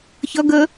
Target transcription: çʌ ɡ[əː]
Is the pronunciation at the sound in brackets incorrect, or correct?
correct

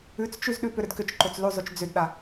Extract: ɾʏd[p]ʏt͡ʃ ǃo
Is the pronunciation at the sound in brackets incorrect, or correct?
incorrect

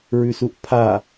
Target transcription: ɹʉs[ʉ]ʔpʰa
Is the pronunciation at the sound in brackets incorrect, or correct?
incorrect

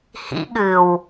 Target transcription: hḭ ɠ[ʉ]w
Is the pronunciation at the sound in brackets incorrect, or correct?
incorrect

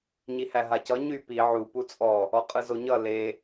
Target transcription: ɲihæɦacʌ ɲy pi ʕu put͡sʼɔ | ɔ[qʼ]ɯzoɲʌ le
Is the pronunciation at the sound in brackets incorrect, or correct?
correct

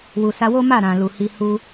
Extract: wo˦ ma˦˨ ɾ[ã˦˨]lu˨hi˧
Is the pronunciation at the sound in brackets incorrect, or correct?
incorrect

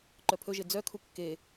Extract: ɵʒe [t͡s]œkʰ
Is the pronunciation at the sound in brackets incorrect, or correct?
incorrect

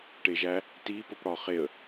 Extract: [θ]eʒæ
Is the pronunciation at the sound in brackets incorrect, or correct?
incorrect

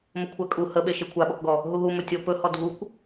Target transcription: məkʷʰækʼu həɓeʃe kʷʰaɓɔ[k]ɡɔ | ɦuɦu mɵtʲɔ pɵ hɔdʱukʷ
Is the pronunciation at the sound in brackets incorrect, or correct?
correct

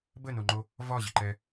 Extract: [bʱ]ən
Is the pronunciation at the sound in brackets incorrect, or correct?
incorrect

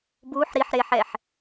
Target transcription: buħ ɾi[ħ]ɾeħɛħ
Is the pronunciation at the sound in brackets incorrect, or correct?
correct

